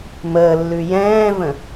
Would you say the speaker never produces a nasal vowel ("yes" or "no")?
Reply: no